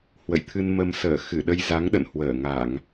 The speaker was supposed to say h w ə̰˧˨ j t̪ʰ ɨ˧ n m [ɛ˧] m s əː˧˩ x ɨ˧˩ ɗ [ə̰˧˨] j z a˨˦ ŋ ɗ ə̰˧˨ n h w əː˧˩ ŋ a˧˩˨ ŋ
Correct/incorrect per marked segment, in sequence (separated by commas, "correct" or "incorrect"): incorrect, incorrect